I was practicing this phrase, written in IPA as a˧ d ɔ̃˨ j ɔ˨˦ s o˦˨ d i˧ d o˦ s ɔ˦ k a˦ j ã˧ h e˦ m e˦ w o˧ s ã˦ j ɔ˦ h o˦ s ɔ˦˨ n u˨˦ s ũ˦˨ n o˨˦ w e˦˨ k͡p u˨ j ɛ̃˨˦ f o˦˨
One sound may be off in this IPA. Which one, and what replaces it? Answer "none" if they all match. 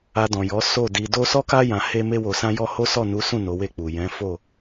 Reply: none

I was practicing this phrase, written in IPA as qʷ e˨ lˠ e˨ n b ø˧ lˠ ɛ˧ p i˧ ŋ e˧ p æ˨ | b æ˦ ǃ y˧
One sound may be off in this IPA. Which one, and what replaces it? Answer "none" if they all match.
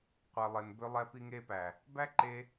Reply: y˧ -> e˧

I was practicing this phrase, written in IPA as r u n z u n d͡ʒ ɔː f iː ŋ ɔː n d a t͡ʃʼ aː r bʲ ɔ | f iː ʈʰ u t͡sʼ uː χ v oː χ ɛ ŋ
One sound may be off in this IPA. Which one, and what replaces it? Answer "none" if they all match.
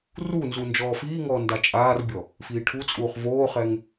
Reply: none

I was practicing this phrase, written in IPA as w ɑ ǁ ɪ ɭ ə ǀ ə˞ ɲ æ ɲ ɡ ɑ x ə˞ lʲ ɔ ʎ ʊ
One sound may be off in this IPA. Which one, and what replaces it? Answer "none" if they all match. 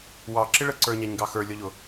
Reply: none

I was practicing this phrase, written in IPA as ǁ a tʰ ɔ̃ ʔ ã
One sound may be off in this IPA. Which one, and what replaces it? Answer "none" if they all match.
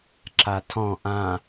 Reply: none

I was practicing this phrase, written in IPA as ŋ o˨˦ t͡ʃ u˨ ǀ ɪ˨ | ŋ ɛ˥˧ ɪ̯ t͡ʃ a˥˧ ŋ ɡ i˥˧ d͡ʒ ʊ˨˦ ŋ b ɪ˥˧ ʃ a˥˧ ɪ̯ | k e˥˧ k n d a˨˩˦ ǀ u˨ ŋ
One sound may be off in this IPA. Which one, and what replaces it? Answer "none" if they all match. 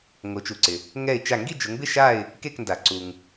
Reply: none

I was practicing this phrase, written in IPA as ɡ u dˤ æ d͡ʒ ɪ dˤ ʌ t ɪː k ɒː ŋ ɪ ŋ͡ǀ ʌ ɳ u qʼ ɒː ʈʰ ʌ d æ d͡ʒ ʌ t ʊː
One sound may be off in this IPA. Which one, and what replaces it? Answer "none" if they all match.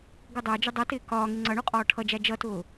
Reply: d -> d͡ʒ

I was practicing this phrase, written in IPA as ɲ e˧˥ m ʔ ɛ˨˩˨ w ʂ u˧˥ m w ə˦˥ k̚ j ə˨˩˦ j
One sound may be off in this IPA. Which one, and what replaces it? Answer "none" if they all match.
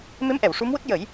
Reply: ɲ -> m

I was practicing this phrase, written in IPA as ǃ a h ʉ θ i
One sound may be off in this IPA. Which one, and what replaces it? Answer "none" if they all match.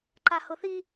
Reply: ʉ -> ʊ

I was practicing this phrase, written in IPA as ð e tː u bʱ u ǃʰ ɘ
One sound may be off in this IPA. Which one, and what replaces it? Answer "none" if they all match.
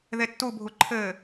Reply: none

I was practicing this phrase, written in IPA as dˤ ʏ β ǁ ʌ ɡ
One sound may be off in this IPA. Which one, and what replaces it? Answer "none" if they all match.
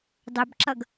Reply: β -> b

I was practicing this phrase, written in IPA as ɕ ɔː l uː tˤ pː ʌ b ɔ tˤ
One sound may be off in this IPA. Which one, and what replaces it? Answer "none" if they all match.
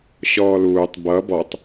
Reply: pː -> b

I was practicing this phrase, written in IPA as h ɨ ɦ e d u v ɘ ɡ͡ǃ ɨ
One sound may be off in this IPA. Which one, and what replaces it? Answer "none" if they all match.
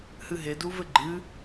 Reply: none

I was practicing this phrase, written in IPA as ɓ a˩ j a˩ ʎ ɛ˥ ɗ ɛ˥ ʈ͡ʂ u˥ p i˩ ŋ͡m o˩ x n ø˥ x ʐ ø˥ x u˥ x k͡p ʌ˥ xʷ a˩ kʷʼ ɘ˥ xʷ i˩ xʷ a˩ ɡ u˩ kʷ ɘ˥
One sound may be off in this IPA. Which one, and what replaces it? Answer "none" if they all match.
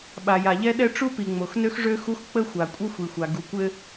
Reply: ʌ˥ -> ə˥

